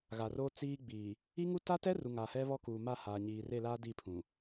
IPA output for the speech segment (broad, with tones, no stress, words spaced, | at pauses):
ɣa˨ro˦ t͡siː˦ ɡ͡biː˨ | i˦ŋu˦ ta˦tɛ˦ ru˨ ŋa˨hɛ˦βɔ˦ kuː˨ma˦˨ haː˨ɲiː˨re˦˨laː˦ di˦˨pʰũ˨